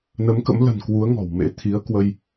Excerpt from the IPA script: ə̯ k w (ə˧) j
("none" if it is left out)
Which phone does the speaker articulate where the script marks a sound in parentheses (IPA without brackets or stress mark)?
ə˧